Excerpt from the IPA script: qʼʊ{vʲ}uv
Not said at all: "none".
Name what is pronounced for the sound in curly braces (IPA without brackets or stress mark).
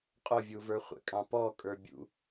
vʲ